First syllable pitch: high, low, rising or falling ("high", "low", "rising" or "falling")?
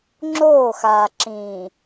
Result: falling